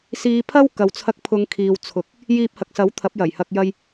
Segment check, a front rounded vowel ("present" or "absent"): absent